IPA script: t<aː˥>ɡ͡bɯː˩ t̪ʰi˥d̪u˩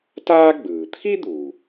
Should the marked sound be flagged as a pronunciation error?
no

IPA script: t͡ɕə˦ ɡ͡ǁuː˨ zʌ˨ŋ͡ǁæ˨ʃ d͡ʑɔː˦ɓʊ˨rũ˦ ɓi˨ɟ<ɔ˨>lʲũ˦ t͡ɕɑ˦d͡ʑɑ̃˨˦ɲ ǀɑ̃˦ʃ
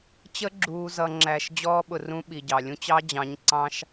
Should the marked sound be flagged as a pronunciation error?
yes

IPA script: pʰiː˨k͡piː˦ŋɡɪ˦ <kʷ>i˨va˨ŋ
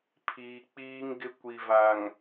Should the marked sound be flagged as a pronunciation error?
no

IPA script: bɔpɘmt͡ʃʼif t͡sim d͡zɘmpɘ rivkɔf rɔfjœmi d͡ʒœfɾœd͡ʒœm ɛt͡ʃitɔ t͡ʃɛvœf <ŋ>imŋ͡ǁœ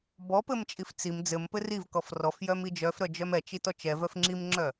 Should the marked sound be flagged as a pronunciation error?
yes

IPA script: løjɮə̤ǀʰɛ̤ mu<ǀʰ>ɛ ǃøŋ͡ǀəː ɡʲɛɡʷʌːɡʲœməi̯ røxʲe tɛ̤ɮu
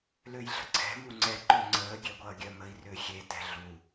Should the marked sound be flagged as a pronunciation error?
yes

